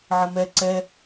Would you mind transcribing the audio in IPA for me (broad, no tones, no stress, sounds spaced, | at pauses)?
ʕ ə m ɛ ǀ ɛ